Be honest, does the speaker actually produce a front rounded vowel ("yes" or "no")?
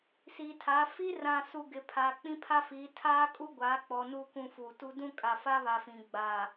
no